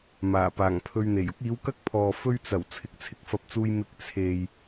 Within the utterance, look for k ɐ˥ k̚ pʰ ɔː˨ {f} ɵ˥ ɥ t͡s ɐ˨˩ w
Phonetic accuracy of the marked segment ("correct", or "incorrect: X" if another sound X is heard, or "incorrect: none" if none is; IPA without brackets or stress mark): correct